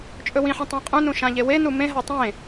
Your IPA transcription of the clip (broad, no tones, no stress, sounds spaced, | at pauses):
t͡ʃʼ ɵ w ĩ ħ ɛ̃ tˤ ẽ qʼ ũ n ũ ʃ ã ʎ e w e n u m ẽ ɦ a tˤ ẽ